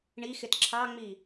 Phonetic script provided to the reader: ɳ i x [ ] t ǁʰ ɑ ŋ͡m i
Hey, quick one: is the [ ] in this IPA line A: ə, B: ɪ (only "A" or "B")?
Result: B